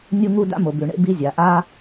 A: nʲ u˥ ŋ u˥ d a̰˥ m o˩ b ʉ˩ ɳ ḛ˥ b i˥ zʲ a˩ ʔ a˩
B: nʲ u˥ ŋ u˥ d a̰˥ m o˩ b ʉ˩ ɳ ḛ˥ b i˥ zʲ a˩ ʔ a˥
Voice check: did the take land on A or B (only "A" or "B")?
B